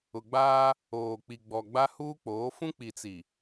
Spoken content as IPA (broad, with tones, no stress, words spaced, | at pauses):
ʊ˨ɡ͡baː˦ | oː˨k͡pi˨ɡ͡bɔ˨ ɡ͡ba˦huː˦k͡poː˨˦ fũ˦k͡pi˨t͡si˨